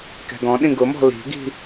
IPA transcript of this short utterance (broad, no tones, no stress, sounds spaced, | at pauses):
k ɛ̤ ɡ ɔ̃ ɗ ĩ ɡ ʊ m ɔ̤ l i̤ ɡ i̤